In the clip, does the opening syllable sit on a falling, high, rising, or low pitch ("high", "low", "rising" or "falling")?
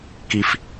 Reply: high